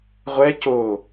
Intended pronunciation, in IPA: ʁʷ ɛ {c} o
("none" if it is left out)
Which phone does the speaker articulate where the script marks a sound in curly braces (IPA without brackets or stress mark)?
c